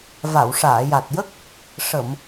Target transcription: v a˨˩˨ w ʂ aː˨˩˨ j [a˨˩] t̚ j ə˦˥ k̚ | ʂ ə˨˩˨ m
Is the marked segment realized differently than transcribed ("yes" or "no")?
no